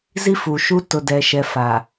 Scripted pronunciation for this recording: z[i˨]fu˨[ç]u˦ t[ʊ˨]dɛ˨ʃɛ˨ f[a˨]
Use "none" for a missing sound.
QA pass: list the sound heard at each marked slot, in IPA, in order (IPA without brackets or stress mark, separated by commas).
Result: i˦, ʃ, ʊ˨, a˨